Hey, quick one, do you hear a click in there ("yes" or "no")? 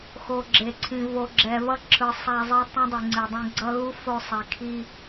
yes